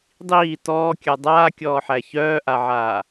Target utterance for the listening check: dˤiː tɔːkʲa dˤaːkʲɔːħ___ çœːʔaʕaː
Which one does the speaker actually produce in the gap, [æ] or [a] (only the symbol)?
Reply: æ